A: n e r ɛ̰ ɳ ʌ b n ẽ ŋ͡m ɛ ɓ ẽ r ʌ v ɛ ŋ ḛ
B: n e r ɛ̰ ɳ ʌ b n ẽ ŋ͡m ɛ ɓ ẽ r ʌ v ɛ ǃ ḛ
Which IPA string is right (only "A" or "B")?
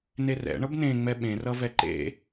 B